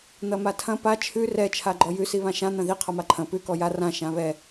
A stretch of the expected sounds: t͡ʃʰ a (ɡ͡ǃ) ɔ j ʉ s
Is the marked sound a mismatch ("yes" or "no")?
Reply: no